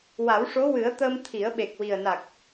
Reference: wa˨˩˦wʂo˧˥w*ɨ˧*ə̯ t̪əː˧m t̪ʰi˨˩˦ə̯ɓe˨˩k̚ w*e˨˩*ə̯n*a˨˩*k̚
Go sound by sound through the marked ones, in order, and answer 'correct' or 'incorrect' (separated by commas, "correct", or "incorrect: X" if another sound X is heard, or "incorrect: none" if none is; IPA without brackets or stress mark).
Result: incorrect: ɨ˨˩˦, incorrect: i˨˩, correct